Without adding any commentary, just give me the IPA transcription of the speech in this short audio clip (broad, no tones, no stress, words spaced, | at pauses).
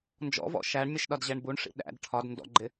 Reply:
nd͡ʒɔ̰vɔ̰ ʃæɳmʲəʃɗɒdʑɛɳ buɳʂḭ ɗæ̰d ʈʰɒd ndɔ̰ɡ͡ǃɪ